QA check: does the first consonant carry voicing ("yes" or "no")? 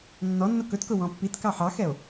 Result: yes